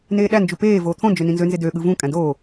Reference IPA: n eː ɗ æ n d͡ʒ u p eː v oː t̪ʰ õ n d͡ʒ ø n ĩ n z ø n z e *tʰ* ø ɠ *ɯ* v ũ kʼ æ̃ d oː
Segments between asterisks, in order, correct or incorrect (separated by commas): incorrect, correct